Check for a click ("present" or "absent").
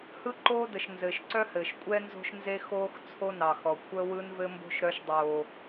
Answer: present